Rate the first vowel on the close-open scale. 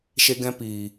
mid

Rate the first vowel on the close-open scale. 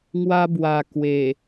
open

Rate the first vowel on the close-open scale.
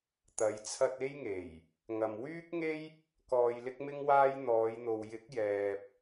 open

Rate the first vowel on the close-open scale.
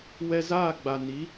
mid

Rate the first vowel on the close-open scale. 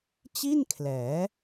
close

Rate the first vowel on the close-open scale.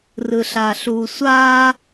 close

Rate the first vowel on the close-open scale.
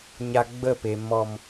open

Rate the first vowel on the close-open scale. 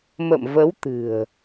mid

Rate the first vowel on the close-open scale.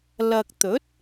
open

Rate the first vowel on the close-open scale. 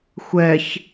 mid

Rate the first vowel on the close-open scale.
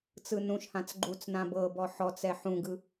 close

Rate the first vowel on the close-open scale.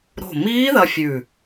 mid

